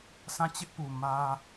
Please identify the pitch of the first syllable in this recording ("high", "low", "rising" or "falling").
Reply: falling